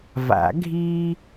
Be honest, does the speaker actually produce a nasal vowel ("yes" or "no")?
no